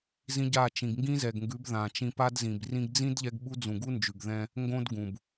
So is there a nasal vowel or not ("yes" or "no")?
yes